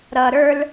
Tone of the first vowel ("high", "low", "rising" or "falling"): low